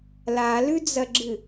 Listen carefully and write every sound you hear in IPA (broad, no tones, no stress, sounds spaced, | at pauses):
l a l ʉ d͡z ɐ ɡ͡ǁ ɨ